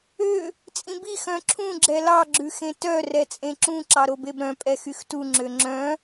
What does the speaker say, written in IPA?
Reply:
ø | t͡sʼĩbi xœ̃ǁʰũ ɡ͡ǁɛlɑ ɡ͡ǁʉxẽtœ rɛt͡sʼẽǁũ ǁɑɾobebɾœ̃ pʼɛxyxtu ŋ͡ǁøŋ͡ǁœ̃

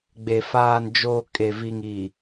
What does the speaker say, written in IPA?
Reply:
ɡ͡be˨ faː˨nd͡ʒoː˨ kʼe˨vi˨ŋi˨

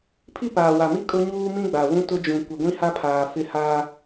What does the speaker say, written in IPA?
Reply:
pʰi˦˨paː˨wa˨mi˦ kʼʊ˦ɲuː˦ mĩ˦ɡ͡ba˨wũ˦ tʊ˦d͡ʒũ˨ kʷɪ˨ɡʷĩ˦ha˦pʰaː˨ fɪ˦haː˦

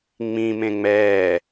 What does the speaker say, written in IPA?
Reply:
ŋ͡mĩ mẽŋ͡mɛː

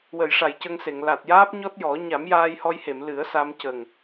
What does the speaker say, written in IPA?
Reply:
wə˨˩˨jʂa˨˩˨jcə˧ŋse˨˩˨ŋ la˨˩t̚jaː˦˥p̚ɲɔ˦˥t̚ jɔ˨˩˦ ɲa˨˩˦mjaː˧jhɔ˧jhe˨˩˨m lɨ˨˩˦ə̯sa˧m cə˨˩ŋ

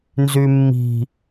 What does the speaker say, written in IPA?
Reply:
nzymːi̤

